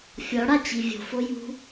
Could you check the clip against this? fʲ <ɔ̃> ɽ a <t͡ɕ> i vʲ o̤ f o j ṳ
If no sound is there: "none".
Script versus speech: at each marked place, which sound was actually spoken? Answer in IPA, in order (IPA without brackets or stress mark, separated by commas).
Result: ɔ, t͡ɕ